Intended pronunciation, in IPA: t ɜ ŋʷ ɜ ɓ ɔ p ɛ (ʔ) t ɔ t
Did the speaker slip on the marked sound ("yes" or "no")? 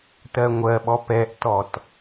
no